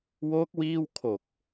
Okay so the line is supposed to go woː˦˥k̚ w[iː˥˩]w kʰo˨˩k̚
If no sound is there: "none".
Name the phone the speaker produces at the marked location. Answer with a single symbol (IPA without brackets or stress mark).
iː˥˩